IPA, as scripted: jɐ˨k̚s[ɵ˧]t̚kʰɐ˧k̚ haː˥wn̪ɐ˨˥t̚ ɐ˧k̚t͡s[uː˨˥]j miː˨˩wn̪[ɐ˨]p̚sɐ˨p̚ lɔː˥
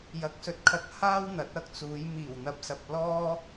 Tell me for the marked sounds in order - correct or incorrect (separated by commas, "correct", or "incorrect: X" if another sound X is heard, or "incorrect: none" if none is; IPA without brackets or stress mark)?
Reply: correct, incorrect: uː˨˧, correct